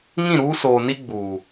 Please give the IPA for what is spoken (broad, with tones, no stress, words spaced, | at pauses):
ŋĩ˦˨ɾuː˦soː˨ni˦ ɡ͡buː˨